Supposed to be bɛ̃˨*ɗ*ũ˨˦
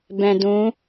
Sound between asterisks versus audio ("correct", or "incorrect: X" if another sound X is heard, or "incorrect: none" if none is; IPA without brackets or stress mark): incorrect: d